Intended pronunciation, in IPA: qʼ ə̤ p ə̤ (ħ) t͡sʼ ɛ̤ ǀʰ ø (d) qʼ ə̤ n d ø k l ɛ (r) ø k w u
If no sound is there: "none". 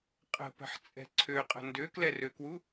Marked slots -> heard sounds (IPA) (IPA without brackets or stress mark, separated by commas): ħ, none, r